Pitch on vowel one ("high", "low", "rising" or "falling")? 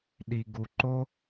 low